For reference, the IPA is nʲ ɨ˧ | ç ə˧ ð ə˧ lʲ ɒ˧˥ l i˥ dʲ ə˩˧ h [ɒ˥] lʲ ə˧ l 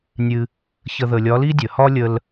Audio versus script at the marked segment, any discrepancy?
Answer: no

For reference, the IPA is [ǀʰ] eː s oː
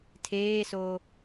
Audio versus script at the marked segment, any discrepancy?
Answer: yes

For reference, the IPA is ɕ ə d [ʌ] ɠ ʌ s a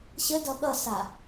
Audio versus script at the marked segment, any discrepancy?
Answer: no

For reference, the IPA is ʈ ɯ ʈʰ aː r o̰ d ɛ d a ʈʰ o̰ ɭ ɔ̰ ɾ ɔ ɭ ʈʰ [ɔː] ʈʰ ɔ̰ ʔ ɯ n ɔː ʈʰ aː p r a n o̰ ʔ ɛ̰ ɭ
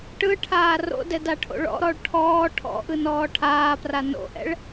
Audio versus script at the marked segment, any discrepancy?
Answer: no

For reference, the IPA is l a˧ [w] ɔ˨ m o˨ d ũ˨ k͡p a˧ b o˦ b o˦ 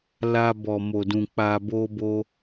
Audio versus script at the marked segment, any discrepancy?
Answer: yes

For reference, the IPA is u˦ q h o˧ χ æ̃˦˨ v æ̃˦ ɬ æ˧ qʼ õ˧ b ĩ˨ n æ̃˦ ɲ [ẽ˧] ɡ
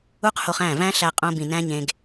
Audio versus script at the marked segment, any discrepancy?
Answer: no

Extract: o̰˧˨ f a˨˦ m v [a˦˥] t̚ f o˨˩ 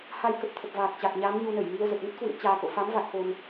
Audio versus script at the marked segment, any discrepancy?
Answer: yes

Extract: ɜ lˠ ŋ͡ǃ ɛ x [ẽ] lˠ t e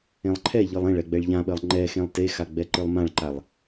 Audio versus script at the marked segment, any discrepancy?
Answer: no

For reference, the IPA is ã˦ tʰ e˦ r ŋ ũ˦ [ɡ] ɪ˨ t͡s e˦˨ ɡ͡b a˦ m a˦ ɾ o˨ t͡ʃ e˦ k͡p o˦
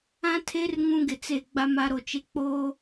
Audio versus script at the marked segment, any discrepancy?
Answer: no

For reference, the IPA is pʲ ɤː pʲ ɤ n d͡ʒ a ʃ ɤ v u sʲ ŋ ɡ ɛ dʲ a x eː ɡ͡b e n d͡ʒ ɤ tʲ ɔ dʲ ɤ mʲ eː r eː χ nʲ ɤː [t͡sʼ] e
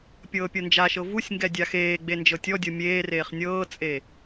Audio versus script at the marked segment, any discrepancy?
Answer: no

